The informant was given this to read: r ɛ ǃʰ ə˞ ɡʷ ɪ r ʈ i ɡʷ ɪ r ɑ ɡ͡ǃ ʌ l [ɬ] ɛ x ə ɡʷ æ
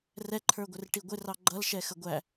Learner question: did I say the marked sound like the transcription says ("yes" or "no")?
no